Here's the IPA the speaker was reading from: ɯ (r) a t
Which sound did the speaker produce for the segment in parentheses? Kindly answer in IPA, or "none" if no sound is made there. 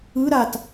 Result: ɾ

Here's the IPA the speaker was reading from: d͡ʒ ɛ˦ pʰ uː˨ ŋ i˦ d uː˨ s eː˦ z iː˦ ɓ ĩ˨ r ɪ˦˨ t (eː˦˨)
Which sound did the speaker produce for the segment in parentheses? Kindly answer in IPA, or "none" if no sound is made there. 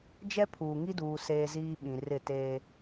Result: eː˦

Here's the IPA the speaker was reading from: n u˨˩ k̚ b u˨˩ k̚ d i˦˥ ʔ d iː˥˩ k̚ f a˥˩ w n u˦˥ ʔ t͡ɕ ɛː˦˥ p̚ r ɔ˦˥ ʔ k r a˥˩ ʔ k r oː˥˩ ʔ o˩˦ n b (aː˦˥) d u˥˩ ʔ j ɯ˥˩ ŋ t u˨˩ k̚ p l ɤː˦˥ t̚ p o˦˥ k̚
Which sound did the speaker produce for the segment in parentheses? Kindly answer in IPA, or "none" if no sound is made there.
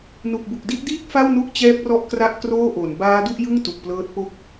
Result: aː˦˥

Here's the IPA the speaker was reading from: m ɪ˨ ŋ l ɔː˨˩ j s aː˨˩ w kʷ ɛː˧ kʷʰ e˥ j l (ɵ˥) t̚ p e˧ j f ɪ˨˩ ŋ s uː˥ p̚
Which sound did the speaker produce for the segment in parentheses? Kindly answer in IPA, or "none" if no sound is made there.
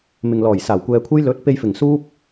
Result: ɵ˨˥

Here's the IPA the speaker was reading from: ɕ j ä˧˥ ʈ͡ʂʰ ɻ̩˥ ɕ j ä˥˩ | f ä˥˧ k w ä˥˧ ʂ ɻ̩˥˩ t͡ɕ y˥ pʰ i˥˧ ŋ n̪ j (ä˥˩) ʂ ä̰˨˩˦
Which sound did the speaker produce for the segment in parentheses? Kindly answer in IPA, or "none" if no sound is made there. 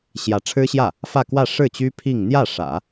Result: ä˥˩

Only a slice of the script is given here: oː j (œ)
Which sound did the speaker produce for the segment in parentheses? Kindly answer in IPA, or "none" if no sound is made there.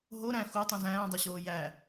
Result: æ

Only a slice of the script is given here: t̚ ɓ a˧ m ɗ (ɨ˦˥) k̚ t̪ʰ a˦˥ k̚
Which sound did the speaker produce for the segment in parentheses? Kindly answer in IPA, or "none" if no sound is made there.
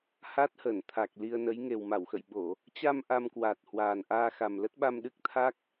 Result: ɨ˦˥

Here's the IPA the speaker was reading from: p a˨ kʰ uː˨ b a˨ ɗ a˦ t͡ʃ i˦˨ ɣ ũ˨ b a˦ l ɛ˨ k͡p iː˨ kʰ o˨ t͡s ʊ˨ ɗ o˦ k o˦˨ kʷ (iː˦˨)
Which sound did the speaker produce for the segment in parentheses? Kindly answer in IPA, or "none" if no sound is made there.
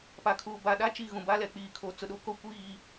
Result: iː˦˨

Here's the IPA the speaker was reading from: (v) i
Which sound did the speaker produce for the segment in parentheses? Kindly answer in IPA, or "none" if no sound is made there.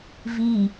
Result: v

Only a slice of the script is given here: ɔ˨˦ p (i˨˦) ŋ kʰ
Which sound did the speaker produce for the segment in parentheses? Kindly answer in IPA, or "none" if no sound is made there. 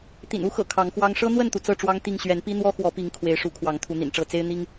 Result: i˨˦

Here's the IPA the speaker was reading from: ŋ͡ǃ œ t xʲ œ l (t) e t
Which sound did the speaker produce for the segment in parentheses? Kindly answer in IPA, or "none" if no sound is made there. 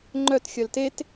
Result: t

